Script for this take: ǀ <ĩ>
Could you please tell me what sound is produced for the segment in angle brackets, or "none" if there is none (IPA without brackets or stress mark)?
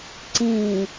ĩ